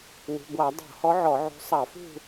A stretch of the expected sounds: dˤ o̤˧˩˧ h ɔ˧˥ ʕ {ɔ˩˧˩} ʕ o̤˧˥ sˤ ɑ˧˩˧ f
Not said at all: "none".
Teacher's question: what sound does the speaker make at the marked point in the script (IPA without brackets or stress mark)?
ɔ˧˩˧